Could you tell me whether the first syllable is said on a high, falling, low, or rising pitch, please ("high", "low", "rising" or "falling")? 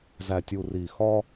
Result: low